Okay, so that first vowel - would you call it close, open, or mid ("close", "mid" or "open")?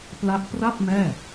open